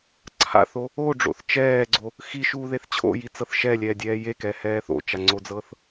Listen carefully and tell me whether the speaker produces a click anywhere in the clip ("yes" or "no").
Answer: yes